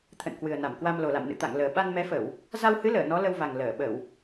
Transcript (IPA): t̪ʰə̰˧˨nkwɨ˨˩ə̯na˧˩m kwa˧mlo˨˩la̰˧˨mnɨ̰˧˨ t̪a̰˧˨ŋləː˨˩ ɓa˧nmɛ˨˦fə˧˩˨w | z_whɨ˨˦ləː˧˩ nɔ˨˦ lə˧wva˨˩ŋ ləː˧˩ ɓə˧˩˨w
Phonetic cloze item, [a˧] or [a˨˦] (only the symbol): a˧